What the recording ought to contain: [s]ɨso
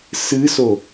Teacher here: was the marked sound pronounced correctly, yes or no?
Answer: yes